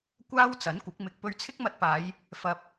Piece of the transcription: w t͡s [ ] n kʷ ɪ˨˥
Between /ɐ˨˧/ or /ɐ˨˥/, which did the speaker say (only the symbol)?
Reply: ɐ˨˥